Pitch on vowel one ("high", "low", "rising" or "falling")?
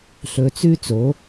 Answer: low